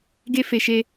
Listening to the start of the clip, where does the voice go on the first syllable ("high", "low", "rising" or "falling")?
high